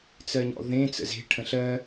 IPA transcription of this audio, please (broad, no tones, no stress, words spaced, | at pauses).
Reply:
t͡sɜɲɔ̰ðẽ t͡sə̰ze̤ ʈʰə̃ɬɜ